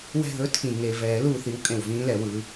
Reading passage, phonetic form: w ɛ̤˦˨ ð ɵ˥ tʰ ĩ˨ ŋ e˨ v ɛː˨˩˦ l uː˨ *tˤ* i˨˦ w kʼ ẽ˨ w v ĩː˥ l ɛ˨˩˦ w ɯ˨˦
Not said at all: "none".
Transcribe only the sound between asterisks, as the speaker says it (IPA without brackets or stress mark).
θ